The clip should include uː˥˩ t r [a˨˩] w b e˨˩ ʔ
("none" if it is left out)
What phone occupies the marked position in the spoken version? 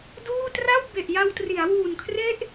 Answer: a˥˩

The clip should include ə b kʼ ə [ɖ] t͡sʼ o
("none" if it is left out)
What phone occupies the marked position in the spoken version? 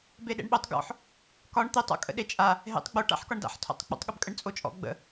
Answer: ɳ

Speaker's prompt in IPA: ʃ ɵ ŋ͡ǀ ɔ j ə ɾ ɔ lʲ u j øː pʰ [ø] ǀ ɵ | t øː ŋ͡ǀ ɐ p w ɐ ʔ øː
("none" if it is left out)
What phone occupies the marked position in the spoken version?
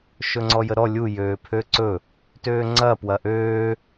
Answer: ø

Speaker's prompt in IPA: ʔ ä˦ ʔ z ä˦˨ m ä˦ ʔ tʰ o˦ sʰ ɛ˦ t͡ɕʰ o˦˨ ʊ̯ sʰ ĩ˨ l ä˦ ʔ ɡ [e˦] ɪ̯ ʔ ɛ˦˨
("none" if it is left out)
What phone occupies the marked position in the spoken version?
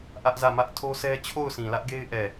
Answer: e˦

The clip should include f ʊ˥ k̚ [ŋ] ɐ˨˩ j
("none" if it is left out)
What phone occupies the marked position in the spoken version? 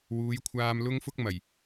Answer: m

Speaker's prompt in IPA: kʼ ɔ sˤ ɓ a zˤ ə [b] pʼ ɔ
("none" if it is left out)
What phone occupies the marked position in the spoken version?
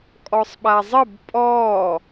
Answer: b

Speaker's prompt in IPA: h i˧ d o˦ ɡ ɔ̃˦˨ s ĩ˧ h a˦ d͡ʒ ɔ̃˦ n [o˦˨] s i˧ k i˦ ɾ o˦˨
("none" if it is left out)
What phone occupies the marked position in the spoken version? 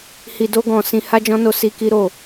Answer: o˦˨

